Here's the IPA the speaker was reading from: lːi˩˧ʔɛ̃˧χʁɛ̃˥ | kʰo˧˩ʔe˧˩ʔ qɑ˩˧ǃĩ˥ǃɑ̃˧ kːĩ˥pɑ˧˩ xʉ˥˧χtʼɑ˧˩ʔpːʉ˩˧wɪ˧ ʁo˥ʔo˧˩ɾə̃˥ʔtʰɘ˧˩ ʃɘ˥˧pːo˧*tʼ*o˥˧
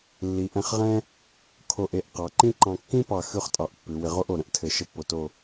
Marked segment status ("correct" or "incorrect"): incorrect